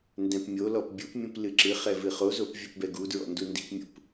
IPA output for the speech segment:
ndɛ̃pmʲolɔp bʲupmʲũp lɨǁɨχɛ vɨχozop vʲupbɛɡudɹɔ̰ ndundi̤pmʲṵp

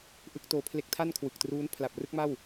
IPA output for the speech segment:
ʔɯ˦˥k̚toː˧ pʰle˦˥k̚tʰa˥˩nkʰwɯ˨˩k̚truː˦˥n pʰla˨˩p̚rɯ˥˩k̚ma˥˩w

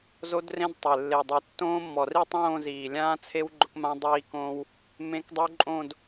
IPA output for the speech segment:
zo˦˥drẽ˦˥dtˤe˨˩ lːe˨˩ dˤu˨˩ tːõː˦˥mːɔ˨˩ri˥˧ tˤõː˥˧ziː˨˩lʲãː˦˥t͡sʰe˦˥w ɡ͡ǃʊ˦˥kmã˦˥ dˤiː˦˥kõː˦˥w | mẽ˦˥kdˤu˦˥ǃʼõ˥˧d

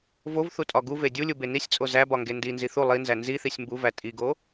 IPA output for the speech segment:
vovθutʼɒ ɡuve dʲulʲube nisʲt͡sʼo zæbɒŋɡe ndinzi θu lˠinzæ nziθisʲ mbuvæ tʼiɡo

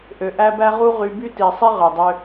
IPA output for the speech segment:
ʔø˨ʔæ˦ bæ˦ʁu˦ʁy˧ by˦ti˨sˤi˦ ʁø˨dˤø˧

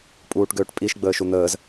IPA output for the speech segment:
pʼuːʈɡøːʈpʼiʃ ɡ͡bəːʃun̪əːz

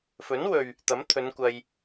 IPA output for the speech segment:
fɵ˨˥nwɵ˨ɥ | t̪ɐ˨˥mt̪ʰɵ˨˧nkʷɐ˧j

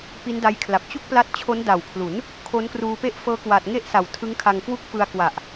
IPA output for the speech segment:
pi˦˥nda˦˥jkʰla˨˩p̚ t͡ɕu˥˩k̚pla˦˥t̚ t͡ɕʰo˦˥nda˨˩wkʰlu˩˦n | kʰo˦˥nkruː˧ pe˥˩ʔfɤː˦˥kwa˨˩t̚ŋe˥˩ʔ sa˨˩wtʰɯ˦˥ŋkʰa˧ŋkwu˥˩k̚ fɯ˧a̯kwa˨˩ʔ

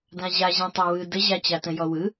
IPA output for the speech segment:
dãʑaʑẽ tˤewɯ dəʑat͡ɕatə̃ jɔwɯ

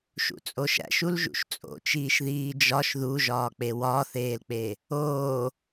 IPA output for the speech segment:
ʃṵt͡sʼoʃæ̰ʃ ulʒṵʃt͡sʼo̰t͡ʃiːʃ ðiːd͡ʒɒʃ ðuʒɒːk͡pe wɒθeːlk͡pe | oː

